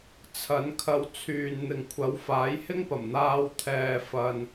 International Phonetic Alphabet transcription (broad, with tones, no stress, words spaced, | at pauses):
t͡sʰɐ˨˥n kʰɐ˧wt͡sʰyː˨n n̪ɪ˨ŋkʷʰɐ˨˥w faː˨˥jhɪ˥ŋpɐ˨˩m n̪aː˧wt̪ʰɛː˨fɐ˨n